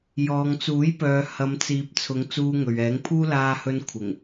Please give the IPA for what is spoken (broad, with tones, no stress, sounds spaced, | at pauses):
j ɔː˨ ŋ t͡s uː˨˥ j p œː˨ h ɐ˨˧ m t͡s iː˨ p̚ t͡sʰ ʊ˨˧ ŋ t͡s uː˧ ŋ ɵ˨ ɥ ɛː˨˥ ŋ pʰ uː˥ l aː˧ h ɵ˧ n kʷʰ ɪ˨˩ ŋ